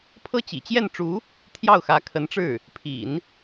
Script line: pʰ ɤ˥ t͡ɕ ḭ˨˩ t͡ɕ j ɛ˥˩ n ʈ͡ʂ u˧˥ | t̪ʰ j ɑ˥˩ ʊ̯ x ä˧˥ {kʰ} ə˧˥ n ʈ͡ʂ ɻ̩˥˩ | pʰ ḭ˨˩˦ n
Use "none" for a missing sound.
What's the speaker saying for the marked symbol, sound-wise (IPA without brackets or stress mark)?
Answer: kʰ